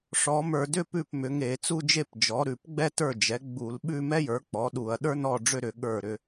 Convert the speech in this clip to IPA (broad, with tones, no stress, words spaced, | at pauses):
ʂɔ˩˥mə˞˧˩˧dʏ˥pʉ˥˩p mʏ˩˥ŋe˧˩˧t͡su˥˧d͡ʒe˥˧p d͡ʒɔ˩˥ɾʉ˧˩˧pɡ͡bɛ˥tə˞˥˩ d͡ʒɛ˩˥ ɡ͡bu˧˩˧l ɓʉ˥˧ mɛ˥jə˞˩˥k͡pɔ˩˥ɗu˧˩˧ɐ̯ ɗə˞˥nɔ˥˩ɖ͡ʐʏ˥˧ɾʏ˧˩˧ ɠə˞˥˩ɾʏ˥˧